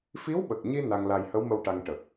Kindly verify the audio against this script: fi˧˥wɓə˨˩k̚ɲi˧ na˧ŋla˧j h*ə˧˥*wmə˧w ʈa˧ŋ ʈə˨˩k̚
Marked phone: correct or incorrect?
correct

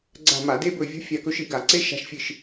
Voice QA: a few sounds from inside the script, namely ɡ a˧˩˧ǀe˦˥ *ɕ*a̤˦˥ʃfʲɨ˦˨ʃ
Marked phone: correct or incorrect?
incorrect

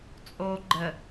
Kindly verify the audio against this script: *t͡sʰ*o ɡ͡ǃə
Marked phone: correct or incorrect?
incorrect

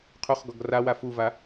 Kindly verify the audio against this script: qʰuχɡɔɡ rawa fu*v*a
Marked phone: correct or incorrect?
correct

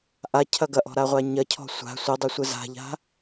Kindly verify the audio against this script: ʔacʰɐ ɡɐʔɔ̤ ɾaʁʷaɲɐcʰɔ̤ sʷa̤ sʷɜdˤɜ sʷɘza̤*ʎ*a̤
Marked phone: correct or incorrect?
correct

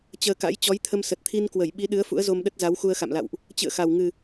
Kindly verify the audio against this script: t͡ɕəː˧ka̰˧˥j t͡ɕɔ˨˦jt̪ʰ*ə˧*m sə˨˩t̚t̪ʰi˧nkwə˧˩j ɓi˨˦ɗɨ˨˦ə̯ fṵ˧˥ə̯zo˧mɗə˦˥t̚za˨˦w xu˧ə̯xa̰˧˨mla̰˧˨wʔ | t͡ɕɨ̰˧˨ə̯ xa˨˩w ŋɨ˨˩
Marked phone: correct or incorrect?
correct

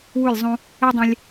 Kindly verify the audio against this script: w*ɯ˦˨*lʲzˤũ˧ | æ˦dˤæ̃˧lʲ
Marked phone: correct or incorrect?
incorrect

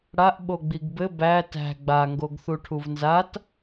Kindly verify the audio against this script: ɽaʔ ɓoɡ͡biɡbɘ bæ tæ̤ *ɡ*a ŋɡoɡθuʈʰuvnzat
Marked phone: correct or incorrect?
incorrect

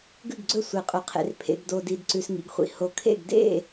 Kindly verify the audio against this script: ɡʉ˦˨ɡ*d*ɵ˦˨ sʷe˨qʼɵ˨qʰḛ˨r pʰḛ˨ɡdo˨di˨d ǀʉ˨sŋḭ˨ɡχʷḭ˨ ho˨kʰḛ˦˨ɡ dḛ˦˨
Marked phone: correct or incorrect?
incorrect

